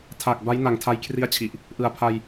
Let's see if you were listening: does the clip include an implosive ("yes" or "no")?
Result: no